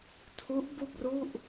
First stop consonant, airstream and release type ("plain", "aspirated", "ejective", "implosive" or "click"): aspirated